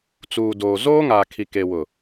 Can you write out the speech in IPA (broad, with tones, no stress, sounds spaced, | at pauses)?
t͡s uː˨ d oː˨ z oː˦ ŋ a˨ kʰ i˨ k e˨ w ʊ˨